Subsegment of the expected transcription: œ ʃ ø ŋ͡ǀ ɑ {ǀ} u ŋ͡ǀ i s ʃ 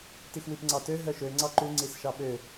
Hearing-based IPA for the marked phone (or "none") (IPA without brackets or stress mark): ǃ